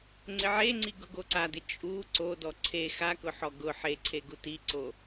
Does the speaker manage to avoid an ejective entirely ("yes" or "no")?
no